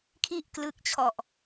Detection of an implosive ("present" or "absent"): absent